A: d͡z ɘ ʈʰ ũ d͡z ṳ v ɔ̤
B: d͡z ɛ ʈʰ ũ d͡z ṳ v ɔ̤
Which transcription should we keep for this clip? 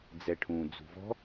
B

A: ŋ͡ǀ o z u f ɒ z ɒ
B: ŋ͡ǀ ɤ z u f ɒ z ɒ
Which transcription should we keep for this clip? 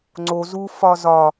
A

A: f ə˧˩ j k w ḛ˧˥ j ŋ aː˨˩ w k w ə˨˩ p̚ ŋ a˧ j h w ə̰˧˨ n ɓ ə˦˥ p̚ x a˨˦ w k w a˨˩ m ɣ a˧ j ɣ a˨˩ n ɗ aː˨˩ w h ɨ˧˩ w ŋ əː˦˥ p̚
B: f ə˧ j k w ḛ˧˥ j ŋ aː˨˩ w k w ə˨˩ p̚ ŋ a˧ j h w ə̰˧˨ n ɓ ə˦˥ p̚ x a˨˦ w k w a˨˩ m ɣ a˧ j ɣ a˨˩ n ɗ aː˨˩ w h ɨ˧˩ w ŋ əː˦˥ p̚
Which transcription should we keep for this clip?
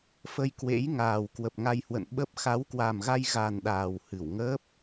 B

